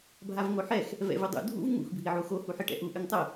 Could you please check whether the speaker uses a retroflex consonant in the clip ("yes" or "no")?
yes